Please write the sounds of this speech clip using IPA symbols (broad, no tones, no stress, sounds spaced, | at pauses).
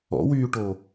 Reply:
ɔ̰ w yː ʈ o